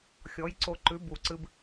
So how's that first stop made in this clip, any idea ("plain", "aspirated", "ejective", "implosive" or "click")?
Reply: click